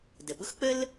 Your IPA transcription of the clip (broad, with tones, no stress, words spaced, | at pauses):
də˩ɓʊ˥xk͡pə˥l